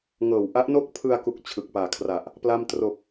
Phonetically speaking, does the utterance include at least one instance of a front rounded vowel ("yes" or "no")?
no